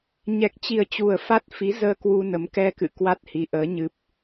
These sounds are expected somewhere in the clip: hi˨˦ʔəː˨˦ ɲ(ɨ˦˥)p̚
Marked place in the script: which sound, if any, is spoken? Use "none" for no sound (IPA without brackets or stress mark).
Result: ɨ˦˥